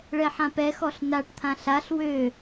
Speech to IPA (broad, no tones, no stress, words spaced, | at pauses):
ɭɛħãpɛxɔɬ naʈt̪ʰã ɬaɬ wø